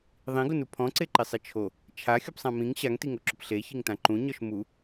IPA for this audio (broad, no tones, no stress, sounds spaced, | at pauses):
ðˤ ĩ ɡ ʊ n u pʰ ɔ̃ ǀ e ǃ i sˤ i t͡ʃʰ o | t͡ʃʰ a xʲ o p sˤ ã m ĩ ŋ ɕ a ŋ t i ŋ o ǁ ʊ p ɬ e ç i ŋ t ã ǃ ũ ɲ ɔ ʃ m u